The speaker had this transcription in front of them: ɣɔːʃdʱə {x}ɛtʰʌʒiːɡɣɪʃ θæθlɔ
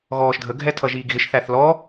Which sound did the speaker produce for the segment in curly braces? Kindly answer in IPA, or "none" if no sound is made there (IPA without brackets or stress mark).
ɡʱ